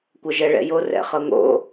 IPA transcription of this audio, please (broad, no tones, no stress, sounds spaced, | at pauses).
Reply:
kʷ ɤ ʒ ɛ ɭ ɛ̰ j o r ɛ̰ χ ɤ ŋ o̰